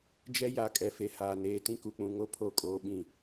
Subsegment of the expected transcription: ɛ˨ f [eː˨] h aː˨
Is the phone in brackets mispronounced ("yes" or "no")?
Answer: yes